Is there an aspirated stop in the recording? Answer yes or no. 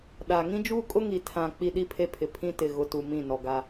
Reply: yes